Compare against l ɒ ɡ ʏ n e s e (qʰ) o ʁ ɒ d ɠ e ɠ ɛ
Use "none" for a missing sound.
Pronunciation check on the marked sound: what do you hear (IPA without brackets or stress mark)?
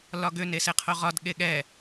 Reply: qʰ